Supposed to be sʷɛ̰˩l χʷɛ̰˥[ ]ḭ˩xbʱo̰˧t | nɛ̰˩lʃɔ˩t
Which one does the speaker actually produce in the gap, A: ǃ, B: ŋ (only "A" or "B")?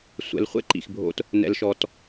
A